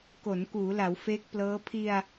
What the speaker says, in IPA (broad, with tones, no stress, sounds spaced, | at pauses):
k o˩˦ n k uː˩˦ l a˩˦ w f eː˦˥ k̚ p l ɤː˦˥ pʰ i˧ a̯